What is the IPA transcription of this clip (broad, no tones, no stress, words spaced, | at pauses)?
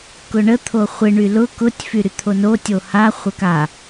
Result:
kʊɳə t̪ʰoχʷɪ ɳylʊ kʊtʲ fyɾyt̪ʰono tʲoha χʷəka